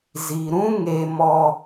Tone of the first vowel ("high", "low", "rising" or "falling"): low